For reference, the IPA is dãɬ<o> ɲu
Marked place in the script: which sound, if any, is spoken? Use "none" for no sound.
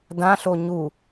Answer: o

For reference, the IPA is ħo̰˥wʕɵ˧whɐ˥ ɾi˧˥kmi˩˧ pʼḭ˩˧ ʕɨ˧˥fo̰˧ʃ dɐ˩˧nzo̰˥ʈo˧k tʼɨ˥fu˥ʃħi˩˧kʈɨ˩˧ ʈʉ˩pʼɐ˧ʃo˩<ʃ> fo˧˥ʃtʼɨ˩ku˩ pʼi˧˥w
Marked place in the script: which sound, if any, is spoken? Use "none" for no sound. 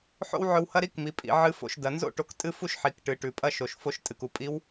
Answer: ʃ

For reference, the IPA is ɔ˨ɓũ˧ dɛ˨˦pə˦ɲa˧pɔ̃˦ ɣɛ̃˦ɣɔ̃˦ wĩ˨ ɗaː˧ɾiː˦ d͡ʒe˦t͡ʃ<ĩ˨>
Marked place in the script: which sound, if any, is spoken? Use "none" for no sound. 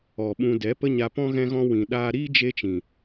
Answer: ĩ˨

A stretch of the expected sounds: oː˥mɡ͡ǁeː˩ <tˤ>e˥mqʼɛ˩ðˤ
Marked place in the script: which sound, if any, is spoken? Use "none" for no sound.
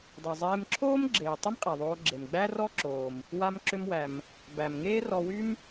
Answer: tˤ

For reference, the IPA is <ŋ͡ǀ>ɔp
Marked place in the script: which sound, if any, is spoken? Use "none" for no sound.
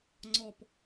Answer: ŋ͡ǀ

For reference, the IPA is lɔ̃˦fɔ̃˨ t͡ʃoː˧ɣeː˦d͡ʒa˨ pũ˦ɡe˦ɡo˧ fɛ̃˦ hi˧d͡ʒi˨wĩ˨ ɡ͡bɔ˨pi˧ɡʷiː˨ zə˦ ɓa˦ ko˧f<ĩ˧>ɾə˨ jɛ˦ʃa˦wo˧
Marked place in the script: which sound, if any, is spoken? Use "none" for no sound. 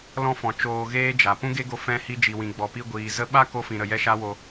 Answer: ĩ˨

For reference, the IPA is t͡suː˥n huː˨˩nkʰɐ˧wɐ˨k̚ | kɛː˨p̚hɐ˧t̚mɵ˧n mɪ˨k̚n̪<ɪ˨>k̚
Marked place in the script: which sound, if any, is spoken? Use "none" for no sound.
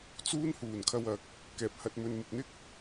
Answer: ɪ˥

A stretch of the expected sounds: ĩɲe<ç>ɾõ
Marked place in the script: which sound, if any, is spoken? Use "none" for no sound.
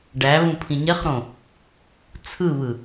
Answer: χ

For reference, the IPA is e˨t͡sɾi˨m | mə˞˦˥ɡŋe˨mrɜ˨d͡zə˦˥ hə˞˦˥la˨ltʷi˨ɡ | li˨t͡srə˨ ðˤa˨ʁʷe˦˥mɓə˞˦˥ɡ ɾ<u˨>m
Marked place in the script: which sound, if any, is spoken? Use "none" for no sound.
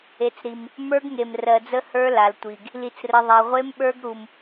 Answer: u˨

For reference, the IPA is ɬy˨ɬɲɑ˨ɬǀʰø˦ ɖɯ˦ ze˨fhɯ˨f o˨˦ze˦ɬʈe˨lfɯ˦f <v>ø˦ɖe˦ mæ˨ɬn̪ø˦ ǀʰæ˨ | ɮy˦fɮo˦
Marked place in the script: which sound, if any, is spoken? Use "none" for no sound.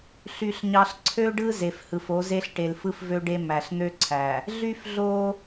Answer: v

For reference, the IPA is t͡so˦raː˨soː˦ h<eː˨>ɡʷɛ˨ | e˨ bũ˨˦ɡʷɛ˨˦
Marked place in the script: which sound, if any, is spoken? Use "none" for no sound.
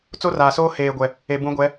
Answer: eː˨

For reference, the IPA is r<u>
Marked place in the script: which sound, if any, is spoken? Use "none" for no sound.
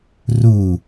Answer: u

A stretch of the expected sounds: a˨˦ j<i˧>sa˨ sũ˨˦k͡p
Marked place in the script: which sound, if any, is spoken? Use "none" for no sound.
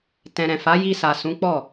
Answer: i˧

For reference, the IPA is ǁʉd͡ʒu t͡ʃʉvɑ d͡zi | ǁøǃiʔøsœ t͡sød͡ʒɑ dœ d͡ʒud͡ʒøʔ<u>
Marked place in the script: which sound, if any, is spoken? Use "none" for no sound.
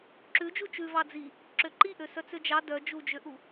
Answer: u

